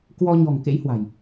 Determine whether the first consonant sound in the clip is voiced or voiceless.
voiceless